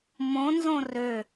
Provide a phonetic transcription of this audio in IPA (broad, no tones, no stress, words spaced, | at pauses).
mõnzõ rø